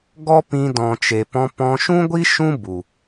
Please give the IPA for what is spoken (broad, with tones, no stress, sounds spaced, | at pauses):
ɡ ɔ˦ p ĩ˧ d ɔ̃˨ t͡ʃ e˨ p ɔ̃˧ p ɔ̃˧ ʃ ũ˦ ɡʷ i˦ ʃ ũ˦ b u˨